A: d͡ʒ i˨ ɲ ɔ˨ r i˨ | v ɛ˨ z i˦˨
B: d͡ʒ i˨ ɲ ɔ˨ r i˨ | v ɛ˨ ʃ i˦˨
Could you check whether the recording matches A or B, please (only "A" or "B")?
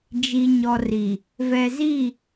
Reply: A